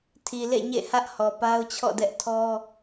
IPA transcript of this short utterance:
tʰi˨lḛ˦˨ɲḛ˦˨ hä˦ʔhɔ˨ pa˦ʊ̯t͡ɕʰɔ̰˦˨dɛ˦ʔ tʰɔ˦

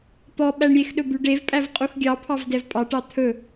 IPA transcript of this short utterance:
t̪ɔ ɓæɳɾʲexɗɵ byɖevpʼæv qʼuxɡʲɑpʰɑv dɛvpʼɑʈɑ t̪ʰɵ

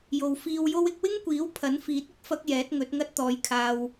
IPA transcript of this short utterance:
jo˨wfiː˧wjo˥w ɪ˧k̚wɪ˥ŋkʷiː˨˥w pʰɐ˨˥nfiː˨˥t̚ʊ˥k̚ fɐ˥k̚jɛː˨˥t̚ŋɵ˨˥t̚ ŋɐ˥t̚t̪ɔː˨˧jkʰaː˧w

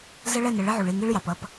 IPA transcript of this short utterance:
zə˦ɭɛ˦˨nə˨ ɭɪ˦ʕu˨ɭi˦˨ŋi˦ɭ jɑ˨pʌ˦p

